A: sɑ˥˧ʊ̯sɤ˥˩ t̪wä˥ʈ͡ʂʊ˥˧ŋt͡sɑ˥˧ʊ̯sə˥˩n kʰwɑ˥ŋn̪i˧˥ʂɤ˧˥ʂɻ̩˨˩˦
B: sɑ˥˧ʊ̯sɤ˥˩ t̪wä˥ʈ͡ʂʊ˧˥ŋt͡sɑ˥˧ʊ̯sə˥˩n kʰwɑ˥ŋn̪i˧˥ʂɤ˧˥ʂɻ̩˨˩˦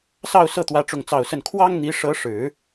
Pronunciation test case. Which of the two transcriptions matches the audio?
A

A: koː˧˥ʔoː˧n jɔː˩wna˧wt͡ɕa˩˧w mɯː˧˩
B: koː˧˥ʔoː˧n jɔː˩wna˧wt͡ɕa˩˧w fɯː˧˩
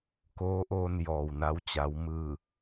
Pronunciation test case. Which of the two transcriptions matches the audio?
A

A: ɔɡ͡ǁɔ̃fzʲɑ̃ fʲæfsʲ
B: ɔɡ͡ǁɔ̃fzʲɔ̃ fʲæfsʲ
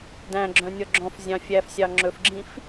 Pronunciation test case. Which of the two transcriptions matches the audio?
A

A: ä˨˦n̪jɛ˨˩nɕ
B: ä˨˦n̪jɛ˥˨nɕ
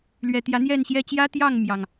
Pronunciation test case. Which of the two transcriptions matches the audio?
B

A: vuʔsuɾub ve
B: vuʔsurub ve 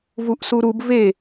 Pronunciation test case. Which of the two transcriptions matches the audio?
A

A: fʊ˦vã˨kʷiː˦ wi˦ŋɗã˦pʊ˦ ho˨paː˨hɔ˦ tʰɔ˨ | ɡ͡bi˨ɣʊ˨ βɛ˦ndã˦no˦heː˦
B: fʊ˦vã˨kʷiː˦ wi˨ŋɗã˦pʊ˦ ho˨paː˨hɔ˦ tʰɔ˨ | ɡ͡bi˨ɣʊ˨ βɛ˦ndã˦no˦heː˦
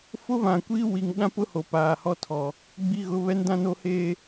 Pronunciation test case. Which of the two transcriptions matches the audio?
B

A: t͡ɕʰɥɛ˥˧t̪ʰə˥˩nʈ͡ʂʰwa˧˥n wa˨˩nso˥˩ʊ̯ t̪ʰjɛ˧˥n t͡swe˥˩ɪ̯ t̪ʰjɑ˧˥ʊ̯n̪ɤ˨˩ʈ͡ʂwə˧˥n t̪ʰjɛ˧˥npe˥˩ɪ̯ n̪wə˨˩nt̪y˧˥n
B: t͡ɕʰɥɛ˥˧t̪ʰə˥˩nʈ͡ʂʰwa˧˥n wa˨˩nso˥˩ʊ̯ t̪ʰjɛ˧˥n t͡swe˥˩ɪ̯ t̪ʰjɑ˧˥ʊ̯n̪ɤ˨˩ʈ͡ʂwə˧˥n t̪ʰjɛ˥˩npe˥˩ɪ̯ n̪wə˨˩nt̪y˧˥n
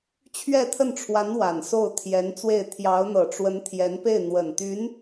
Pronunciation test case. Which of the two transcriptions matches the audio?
A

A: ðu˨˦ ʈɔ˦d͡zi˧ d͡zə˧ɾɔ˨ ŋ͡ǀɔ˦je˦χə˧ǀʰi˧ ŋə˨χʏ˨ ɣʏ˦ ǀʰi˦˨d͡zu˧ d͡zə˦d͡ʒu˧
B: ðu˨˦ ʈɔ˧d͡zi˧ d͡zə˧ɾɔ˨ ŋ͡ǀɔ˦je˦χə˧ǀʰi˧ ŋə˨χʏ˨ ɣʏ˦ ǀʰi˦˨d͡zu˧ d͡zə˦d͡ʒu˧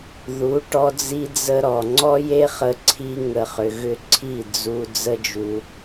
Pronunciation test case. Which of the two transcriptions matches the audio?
B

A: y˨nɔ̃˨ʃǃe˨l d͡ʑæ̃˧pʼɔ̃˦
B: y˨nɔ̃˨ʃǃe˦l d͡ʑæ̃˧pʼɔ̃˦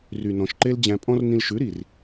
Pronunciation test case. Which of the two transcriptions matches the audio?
B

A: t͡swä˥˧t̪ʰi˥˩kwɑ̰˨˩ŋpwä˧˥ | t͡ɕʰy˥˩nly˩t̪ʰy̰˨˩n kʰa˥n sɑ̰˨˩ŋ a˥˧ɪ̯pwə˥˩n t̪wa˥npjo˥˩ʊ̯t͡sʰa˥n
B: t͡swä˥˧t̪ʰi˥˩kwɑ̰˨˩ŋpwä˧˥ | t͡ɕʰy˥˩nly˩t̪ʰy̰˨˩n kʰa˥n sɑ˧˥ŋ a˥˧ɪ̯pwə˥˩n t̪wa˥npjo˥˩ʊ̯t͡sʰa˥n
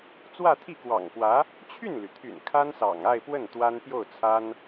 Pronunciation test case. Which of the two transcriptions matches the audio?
A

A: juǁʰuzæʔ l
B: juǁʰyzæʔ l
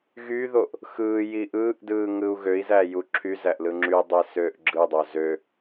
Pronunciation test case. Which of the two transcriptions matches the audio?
B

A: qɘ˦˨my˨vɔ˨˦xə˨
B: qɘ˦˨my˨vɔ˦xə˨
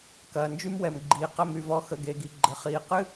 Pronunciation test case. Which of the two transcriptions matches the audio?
A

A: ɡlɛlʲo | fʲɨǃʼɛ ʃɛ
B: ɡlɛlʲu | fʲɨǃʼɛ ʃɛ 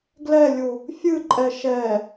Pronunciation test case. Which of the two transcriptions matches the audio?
B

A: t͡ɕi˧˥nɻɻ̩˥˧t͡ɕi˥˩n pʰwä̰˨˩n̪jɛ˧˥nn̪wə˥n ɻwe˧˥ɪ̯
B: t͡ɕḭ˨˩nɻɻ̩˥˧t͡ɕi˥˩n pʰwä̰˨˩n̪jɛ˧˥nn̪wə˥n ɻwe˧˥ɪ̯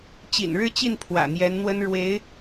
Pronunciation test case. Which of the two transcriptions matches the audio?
B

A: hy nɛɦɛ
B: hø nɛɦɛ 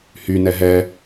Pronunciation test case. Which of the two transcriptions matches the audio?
A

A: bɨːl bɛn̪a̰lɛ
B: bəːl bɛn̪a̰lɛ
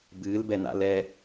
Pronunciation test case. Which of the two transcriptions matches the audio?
A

